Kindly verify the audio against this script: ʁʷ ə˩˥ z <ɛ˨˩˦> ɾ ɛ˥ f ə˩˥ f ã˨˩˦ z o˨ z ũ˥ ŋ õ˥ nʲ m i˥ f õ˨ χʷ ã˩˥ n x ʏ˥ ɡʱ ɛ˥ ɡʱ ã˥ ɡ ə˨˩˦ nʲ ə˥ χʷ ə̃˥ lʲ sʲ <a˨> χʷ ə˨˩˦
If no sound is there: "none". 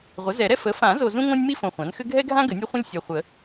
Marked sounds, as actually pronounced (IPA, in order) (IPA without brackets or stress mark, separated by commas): ɛ˨˩˦, a˨